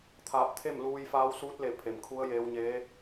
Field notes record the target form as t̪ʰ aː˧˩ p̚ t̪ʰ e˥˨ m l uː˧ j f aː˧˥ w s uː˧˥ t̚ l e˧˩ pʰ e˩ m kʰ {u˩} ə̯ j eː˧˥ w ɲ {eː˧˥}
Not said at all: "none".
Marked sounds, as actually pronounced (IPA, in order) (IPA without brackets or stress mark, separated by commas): u˧˥, eː˧˥